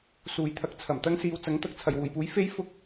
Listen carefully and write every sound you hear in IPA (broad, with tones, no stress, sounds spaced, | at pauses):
s uː˨ j t̪ʰ ɐ˧ k̚ t͡sʰ ɐ˨˩ m t̪ ɐ˥ ŋ s iː˨˧ w t͡s ɐ˨˥ ŋ t̪ ɐ˧ k̚ t͡sʰ ɐ˨˩ j w uː˨˩ j p uː˨˥ j f e˥ j f ʊ˥ k̚